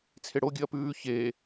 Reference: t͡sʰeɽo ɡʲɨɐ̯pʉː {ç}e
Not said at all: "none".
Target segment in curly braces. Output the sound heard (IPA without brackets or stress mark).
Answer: ç